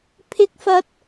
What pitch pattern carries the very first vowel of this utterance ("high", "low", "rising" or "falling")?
high